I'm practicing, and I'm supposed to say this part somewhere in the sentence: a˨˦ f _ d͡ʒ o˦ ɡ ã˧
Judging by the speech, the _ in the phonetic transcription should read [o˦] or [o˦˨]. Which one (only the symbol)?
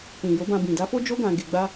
o˦